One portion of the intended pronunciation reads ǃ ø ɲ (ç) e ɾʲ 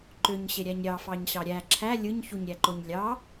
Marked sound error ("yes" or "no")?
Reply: yes